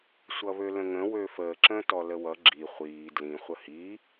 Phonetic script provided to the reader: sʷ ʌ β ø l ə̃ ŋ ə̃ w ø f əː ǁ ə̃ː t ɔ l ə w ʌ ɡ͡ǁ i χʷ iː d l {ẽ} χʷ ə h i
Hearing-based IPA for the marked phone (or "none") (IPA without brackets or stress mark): ĩ